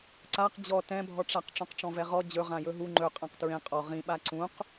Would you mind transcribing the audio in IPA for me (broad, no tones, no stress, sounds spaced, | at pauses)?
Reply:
ǀ a q d͡ʑ ɔ t ɛ̃ bʱ ɔ ʈ͡ʂ a q ʈ͡ʂ ɔ̃ q ʈ͡ʂ ɔ̃ v ɛ ʁ ɔ d͡ʑ ɵ ʁ ã j ɵ ɦ u ŋ͡ǃ ɵ qʼ ã q t ɹ ẽ qʼ ɔ ʁ ĩ ɓ a ǀ ũ q